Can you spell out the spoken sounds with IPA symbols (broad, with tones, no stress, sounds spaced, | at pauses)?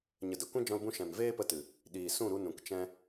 ɲ ə˨ d ə˨ kʷ ɛ̃˦ d͡ʒ ɔ̃˧ l b ũ˧ ʃ ɛ̃˨ m v eː˦ p ə˧ t ɨ˨ | ɗ iː˨ s ũ˦˨ ɾ u˧ n ũ˨ k t͡ʃ ɛ̃˦